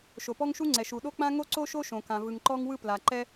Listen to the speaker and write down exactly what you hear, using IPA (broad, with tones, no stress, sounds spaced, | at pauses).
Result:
ʃ o˩ p ɔ˥ ŋ ʃ u˥ ŋ͡ǀ ɛ˩ ʃ u˩ ɗ o˥ k͡p ã˥ ŋ o˥ ǀ o˥ ʃ o˥ ʃ õ˩ k ã˩ v ɯ˩ ŋ ǃ ɔ˥ ŋ w ɯ˥ p l a˩ ǃ ɛ˥